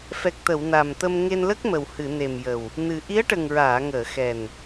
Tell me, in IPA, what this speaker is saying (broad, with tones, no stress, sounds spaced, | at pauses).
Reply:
f ɛ˨˩ k̚ t̪ ə˨˩˨ w n a˨˩ m t̪ ə˧ m ŋ e˧ n l ə˦˥ k̚ m ə˨˩ w h ɨ˨˩˨ n e˨˩ m j ə˨˩ w | n ɨ˨˩ ʔ i˧˥ ə̯ ʈ ə˨˩ ŋ ɹ aː˨˩˨ ŋ əː˨˩˨ x ɛ˨˩ n